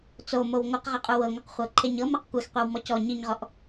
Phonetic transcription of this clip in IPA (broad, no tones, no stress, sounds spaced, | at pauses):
t͡s o m o w ŋʷ ɯ q ʁ a qʼ u w ɤ ŋʷ ɯ q χʷ ɤ ǃʰ e ɲ ɤ m a q kʷ ɛ x qʷ ɛ w m ɔ c ɔ ɲ i ɲ ʁ ɔ ʔ